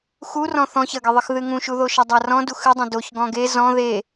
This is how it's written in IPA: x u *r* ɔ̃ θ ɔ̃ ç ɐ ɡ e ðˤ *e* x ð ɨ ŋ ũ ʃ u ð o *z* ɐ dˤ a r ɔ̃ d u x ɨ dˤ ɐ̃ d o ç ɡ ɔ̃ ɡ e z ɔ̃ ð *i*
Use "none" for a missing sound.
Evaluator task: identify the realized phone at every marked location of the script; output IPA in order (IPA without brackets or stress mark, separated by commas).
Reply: r, ɨ, ʃ, e